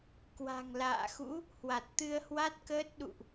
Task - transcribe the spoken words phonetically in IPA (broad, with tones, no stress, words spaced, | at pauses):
kwa̤˨˩ŋla̰ː˧˨xṵ˧˥ | hwa˨˩t̚t̪ɨ˧ə̯hwa˦˥t̚kəː˦˥t̚ ɗṵ˧˨ʔ